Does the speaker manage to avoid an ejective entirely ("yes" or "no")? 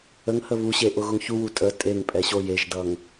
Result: no